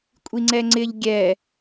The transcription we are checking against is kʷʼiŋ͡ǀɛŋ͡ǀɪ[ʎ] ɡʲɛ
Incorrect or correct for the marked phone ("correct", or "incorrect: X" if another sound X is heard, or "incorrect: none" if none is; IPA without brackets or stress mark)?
correct